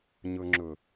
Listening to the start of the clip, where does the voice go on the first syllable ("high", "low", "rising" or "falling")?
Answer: low